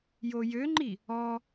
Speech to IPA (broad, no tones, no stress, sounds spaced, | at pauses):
j o j ø ŋ͡ǃ i | ɔ